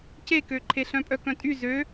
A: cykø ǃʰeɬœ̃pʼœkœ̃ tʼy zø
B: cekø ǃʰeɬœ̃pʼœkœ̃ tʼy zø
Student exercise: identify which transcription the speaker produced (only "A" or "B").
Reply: B